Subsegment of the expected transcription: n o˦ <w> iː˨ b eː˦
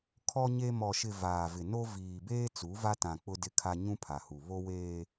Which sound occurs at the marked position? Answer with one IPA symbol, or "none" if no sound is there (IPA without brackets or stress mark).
v